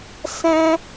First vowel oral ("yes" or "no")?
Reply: no